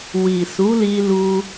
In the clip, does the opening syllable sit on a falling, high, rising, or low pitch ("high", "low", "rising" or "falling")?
low